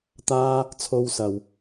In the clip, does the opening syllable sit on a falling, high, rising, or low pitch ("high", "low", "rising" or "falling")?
high